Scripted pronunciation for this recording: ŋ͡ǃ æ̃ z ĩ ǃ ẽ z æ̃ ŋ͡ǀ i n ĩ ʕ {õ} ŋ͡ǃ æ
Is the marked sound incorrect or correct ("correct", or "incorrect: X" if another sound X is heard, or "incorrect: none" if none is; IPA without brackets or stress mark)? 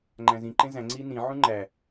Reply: incorrect: ũ